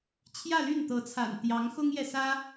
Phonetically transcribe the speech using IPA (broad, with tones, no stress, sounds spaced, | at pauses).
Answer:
t͡ɕʰ j ä˥˧ l y˥˩ n t̪ ɤ˧˥ t͡sʰ a̰˨˩ n t̪ j ɑ˧˥ ŋ x ʊ˥ ŋ j ɛ˨ s ä˥